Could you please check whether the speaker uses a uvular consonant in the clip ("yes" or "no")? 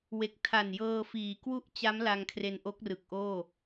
no